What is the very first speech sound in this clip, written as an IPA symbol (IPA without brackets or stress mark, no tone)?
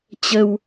t͡ɕ